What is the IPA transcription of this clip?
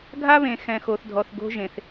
ɡʱa˥βẽ˨ xɛ̃˨xo˨θdʱɔ˨θ ɡo̤˥ʒẽ˨θ

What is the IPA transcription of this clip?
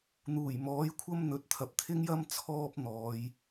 n̪uː˨˩jmɔː˨˥jkʷʰɐ˥m n̪ɵ˨˥t̚t̪ʰɐ˨p̚ t̪ʰɪ˥ŋjɐ˥m t͡sʰɔː˥p̚ n̪ɔː˨˧j

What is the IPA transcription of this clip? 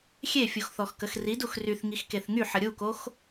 xʲefʲuxθɔxkəx ridux ryθŋixkeθ ŋyħə ɾʲukox

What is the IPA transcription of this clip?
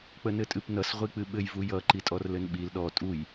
k͡pənɘtʼɨpnʌs ʁʷik͡pɨɓɘj vujʌ ǃitʼɔrlɘnɓil ɗɔ tʼuj

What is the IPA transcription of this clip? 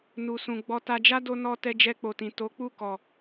nu˧sũ˧ ɡ͡bɔ˧ta˧d͡ʒa˦ do˦nɔ˦ tɛ˧d͡ʒɛ˧k͡po˨tĩ˨ to˨˦k͡pu˦˨ kɔ˨

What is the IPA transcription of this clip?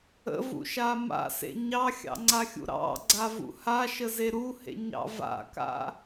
ə̰vṵʃa ma̰sḛ ɲɑxʲɑ̰ŋ͡ǀaxʲṵ ɾɑ̰ɡ͡ǀavṵ haʃəze ɾuhḛɲɑ̰ va̰ka̰

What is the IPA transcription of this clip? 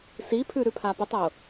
sipʰʉ ɾʉpʰapʊtˤʊ

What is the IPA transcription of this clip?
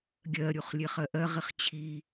ɡʲɜɾʲuχlʲeχ ɜʔɜʁiχ t͡ɕʰi

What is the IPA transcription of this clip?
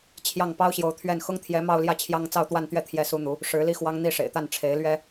t͡ɕʰjɑ˥˩ŋ pɑ˥ʊ̯ɕjo˧˥ʊ̯t̪ʰɥɛ˥˩n xʊ˥ŋt̪ʰjɛ˧˥ mɑ˥˧ʊ̯ljä˥˩t͡ɕʰjɑ˥ŋ t͡sɑ˥˧ʊ̯t̪wa˥˧nt̪ɥɛ˥˩ t̪ʰjɛ˥su˥n̪u˧˥ | ʂɻ̩˧˥li˥xwɑ˥ŋ n̪i˥˩ʂḛ˨˩ɪ̯t̪a˥˩n ʈ͡ʂʰe˧˥ɪ̯lɥɛ˥

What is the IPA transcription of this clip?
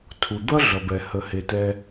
tʰu˩d̪ʌ˦ɮʌ˩bɛ˩ hə˩he˩tɛ˨

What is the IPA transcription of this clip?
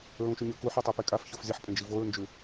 ɹũʃʉɲɵ kuħotˤɨpe kʼafçof zʲɐħ pʼẽd͡ʒivoɹnd͡ʒʉ

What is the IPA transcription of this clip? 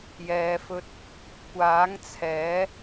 jɛː˨fɵ˧t̚ | kʷaː˨˥ŋt͡sʰɛː˨˥

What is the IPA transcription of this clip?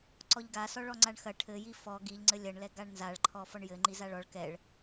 ǀɔʎɡasɔ ɭɔŋ͡ǀaɳxɐ ʈʰɘji fɔ ɡiʎŋ͡ǀɘ lʲɐɳlɛ ɡaɳnzaɭǃʰɔ fɔɳjɘŋ͡ǃi zaɭɔɭ kɛɭ

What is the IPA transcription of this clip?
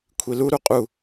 kʷʰilu ɾuqʼu

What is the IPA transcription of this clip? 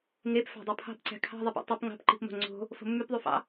ŋep fæ̤dˤupʰɑ̤pǀæ̤ kʰɑ̤ ðˤepɑ̰tˤɯp ŋɑ̤pǃi̤pmo̤ ŋ͡ǀo̤ | fo̤mːypðˤyfɑ̰

